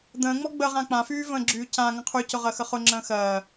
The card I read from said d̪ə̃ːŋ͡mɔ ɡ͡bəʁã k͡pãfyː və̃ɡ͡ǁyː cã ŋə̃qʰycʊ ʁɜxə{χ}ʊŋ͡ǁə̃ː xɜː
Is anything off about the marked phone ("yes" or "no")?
no